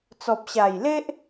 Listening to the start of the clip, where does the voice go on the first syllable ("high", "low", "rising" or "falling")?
low